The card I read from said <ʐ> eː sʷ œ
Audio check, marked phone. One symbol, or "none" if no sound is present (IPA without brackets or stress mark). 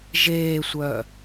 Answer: ʒ